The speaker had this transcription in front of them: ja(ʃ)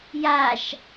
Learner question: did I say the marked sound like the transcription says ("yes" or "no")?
yes